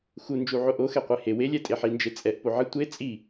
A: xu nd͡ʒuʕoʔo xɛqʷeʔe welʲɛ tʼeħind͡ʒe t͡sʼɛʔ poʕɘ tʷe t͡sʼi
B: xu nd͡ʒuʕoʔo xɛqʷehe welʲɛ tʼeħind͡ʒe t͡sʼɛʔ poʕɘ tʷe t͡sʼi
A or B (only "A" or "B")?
B